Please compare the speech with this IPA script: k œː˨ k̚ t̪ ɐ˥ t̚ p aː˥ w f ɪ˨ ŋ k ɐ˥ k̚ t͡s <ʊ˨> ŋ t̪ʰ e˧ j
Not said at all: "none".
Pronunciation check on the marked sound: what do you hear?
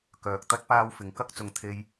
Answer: ʊ˨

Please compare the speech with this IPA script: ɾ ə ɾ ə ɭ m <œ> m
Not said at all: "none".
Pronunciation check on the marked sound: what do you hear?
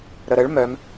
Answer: œ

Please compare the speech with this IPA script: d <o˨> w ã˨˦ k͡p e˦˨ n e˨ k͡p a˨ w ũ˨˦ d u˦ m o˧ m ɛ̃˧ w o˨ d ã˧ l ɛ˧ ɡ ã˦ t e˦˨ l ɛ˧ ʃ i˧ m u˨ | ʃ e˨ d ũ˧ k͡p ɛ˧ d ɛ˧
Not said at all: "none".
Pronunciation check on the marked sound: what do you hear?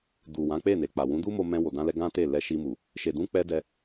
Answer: u˨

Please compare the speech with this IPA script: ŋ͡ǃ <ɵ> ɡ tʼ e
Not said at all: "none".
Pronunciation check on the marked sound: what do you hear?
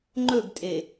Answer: ɵ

